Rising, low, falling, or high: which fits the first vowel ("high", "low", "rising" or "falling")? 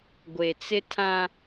low